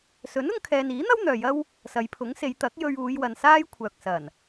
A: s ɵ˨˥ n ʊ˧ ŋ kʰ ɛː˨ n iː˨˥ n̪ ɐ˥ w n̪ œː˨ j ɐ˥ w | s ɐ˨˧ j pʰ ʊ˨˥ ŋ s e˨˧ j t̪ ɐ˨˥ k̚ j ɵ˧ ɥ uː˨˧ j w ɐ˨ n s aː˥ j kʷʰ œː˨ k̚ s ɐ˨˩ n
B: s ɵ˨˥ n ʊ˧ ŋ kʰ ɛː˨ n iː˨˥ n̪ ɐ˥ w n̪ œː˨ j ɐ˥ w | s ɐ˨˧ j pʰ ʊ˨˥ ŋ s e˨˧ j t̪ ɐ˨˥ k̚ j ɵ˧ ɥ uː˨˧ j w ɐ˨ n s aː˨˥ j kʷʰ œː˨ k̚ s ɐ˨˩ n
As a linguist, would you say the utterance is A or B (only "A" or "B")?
A